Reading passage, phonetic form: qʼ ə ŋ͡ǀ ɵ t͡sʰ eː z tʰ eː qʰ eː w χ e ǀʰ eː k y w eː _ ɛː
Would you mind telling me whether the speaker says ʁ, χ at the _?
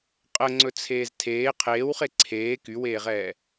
ʁ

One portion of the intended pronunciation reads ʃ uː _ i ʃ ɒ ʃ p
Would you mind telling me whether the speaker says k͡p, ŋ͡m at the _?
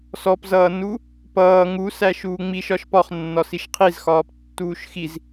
ŋ͡m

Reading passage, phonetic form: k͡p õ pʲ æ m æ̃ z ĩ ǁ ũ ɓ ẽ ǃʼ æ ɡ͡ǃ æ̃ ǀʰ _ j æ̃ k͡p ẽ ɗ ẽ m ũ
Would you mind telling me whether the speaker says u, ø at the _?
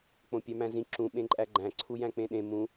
u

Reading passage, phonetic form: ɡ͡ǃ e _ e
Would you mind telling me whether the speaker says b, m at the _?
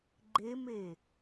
m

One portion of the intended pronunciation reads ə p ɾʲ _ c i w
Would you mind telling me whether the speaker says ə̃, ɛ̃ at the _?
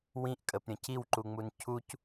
ə̃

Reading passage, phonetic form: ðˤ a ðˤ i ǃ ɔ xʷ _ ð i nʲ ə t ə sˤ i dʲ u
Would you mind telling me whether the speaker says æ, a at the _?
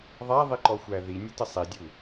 æ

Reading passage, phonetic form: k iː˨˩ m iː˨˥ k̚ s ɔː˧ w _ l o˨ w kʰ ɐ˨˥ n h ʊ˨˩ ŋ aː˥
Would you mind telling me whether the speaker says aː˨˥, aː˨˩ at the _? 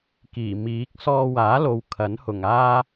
aː˨˥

